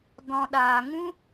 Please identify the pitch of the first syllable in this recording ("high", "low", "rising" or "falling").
low